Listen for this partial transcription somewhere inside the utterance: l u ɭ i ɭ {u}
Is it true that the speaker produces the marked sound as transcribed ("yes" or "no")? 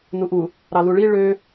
no